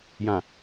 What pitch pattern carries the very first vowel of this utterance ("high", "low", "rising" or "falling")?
low